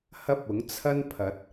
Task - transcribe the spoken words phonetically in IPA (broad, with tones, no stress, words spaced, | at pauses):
hɐ˥p̚ʊ˨˥ŋt͡sʰɐ˥npʰɐ˨˥t̚